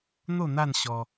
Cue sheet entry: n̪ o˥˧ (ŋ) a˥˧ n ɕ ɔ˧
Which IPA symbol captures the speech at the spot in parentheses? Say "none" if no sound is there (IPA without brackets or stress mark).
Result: n̪